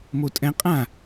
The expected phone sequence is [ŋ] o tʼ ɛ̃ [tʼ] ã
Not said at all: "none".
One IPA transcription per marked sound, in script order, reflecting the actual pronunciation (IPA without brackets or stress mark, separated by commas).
m, qʼ